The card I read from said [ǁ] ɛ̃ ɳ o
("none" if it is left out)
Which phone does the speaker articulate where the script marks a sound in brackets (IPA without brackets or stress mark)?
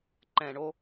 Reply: ǃ